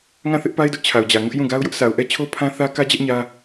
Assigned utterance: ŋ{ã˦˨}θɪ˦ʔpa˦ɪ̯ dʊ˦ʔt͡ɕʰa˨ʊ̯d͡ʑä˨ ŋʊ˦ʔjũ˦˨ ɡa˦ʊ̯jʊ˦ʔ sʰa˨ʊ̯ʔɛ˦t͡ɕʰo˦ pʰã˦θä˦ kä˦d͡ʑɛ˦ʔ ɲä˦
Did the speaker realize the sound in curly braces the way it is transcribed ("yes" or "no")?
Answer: yes